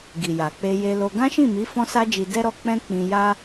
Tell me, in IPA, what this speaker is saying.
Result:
ɡ i˨ j a˨ k͡p e˧ j e˧ l o˧ ɡ ã˦ ʃ ĩ˦˨ m i˨˦ f ɔ̃˦ s a˦ d͡ʒ i˧ d ɛ˦ ɾ ɔ˧ k͡p ɛ̃˦ k͡p ĩ˧ j a˦

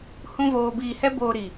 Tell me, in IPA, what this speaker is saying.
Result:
h ũ˧ v oː˨ b iː˨ h ɛ˧ b oː˨ ɾ i˨

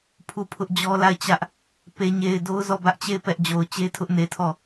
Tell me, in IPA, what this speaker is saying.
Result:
pʰ u˦˨ pʰ ʊ˦ ʔ d͡ʑ ɔ˦ l a˦˨ ɪ̯ t͡ɕ ä˦ ʔ | p e˨ ɲ e˨ ɪ̯ d o˦ ʊ̯ z ɔ˦˨ b ä˦ ʔ t͡ɕ e˦˨ ɪ̯ p ɛ˦ ʔ d͡ʑ o˨ ʊ̯ t͡ɕ e˦ tʰ ʊ˦ ʔ n e˨ tʰ ɔ˦˨

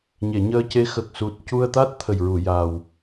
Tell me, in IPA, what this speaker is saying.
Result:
ɲ e˨˩˨ ɲ əː˧ c e˧˥ x ə˨˩ k̚ s u˨˩ t̚ c u˧ ə̯ t̪ a˦˥ t̚ t̪ʰ ə˨˩ j ɹ u˨˩˨ j a˨˩ w

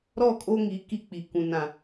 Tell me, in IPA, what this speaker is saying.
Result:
ɾ ɔ˦˨ kʼ o˦ ŋ i˨˦ k i˦ k͡p i˨ k ũ˨ n ã˨

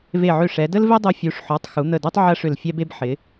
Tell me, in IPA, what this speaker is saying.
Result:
v e˧˩ ʕ ø˧˩ ʂ ɛ˩˧ d ə˥ l v e˥ dˤ o˧ fʲ u˩˧ ʂ ħ ɔ˩˧ tˤ x u˩˧ n̪ ə˧˩ d o˥ tˤ ʕ ɐ˥ ʂ ʏ˧˩ l fʲ ɛ˥ b e˥ b ħ ɪ˩˧

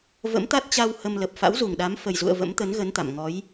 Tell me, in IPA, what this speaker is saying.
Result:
v ə̰˧˥ m t̪ a˦˥ t̚ t͡ɕ a˧ w h ə˧ m l ə˨˩ p̚ f a̰˧˥ w z u˨˩ ŋ ɗ a˨˦ m f ə˨˩ j z ṵ˧˨ ə̯ v ə̰˧˥ m t̪ ə˨˦ n ɣ ə˨˦ n t̪ a̰˧˨ m ŋ ɔ˨˦ j

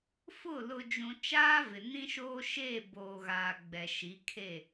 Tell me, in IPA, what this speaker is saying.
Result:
f ʊ˦˨ l ʊ˨ d͡ʒ ũ˨ t͡ʃ aː˦ v ɪ˨ n ĩ˦ ʃ oː˦ ʃ e˦˨ b oː˨ ɣ aː˨ ɡ͡b ɛ˨ ʃ i˨˦ kʰ e˦˨

